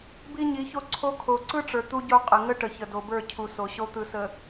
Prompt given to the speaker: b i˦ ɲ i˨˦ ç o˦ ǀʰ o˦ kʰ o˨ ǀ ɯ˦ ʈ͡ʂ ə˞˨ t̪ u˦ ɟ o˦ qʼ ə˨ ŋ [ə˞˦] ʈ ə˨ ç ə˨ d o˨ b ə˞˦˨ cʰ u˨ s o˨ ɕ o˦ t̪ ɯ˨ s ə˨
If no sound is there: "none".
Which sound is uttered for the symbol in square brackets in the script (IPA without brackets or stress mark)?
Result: ə˦